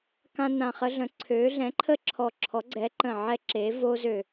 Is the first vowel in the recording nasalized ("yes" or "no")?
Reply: yes